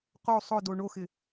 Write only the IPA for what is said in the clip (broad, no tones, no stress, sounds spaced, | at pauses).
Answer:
q o sˤ ʊ d o ɳ o x ɪ